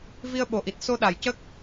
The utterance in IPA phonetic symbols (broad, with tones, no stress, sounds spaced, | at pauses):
v i˧ ə̯ ɓ o˨˩ ʔ i˨˩ t̚ s o˧ ɗ a˨˩ j c ə˦˥ k̚